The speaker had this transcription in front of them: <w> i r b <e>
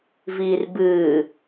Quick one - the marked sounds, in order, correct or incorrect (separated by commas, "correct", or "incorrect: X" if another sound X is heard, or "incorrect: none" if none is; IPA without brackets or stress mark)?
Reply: incorrect: v, incorrect: ɨ